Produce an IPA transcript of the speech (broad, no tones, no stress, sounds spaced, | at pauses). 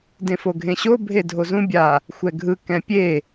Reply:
d ẽ f o ɡʱ ẽ ɕ o bʱ e dʱ o z ũ bʲ a | xʷ ɛ ɡʱ ɯ k ɛ̃ pʲ e